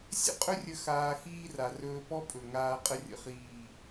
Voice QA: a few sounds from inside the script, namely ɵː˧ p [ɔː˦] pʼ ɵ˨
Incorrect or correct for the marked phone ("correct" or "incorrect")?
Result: incorrect